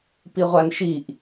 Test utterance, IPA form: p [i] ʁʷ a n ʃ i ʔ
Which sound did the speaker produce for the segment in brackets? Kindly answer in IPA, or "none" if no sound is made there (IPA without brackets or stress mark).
i